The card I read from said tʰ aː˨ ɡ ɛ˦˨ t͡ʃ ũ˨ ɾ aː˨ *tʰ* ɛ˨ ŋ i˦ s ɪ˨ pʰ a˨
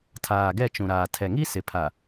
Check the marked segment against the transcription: correct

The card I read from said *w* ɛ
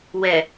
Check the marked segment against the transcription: correct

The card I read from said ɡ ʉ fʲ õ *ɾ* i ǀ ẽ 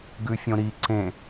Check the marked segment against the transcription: correct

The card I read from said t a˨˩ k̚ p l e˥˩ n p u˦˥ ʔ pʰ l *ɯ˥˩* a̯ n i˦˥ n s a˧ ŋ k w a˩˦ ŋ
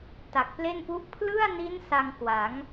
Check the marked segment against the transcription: correct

